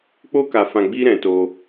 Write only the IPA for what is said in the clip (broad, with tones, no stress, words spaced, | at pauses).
k͡po˦ka˧fã˧ ɡ͡bi˦ɾɛ̃˧to˧